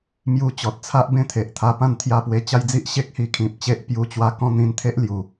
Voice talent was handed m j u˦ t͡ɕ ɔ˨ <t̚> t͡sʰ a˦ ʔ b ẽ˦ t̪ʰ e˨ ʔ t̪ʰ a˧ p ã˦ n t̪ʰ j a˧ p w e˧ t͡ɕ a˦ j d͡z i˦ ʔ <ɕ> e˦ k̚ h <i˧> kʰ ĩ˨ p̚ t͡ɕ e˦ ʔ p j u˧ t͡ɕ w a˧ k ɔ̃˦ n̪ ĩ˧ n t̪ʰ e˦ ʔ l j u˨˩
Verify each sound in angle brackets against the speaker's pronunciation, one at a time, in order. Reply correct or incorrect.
correct, correct, correct

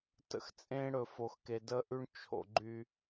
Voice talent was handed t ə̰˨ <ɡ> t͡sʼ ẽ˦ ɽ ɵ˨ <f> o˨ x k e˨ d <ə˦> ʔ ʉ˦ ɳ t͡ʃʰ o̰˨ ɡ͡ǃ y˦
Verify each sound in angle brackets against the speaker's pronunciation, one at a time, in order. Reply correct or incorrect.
incorrect, correct, correct

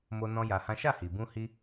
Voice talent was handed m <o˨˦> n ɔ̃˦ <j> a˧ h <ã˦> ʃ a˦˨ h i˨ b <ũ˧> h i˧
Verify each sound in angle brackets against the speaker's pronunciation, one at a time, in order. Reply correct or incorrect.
incorrect, correct, correct, correct

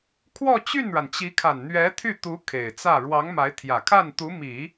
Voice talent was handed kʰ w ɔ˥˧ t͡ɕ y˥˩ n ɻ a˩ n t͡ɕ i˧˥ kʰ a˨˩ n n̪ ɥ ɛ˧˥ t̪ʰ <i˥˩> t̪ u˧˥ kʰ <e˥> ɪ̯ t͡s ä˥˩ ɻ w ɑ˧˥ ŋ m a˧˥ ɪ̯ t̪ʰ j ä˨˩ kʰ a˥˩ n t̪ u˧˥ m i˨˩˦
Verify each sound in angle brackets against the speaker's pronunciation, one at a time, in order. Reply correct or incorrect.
incorrect, incorrect

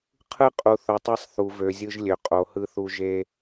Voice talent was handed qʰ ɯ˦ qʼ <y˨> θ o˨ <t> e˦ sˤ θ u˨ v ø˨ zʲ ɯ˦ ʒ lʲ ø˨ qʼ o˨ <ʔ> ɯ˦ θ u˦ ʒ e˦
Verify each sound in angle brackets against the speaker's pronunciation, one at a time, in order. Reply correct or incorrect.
incorrect, incorrect, incorrect

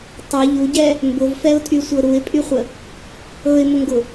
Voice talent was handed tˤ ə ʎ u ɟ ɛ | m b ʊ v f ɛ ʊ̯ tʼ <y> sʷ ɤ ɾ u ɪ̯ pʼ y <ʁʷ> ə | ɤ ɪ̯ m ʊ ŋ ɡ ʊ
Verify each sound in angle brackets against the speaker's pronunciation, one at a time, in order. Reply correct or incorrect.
correct, incorrect

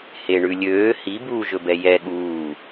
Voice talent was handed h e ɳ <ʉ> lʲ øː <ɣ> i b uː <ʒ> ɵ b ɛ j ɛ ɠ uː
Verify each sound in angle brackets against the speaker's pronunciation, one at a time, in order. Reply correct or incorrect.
correct, incorrect, correct

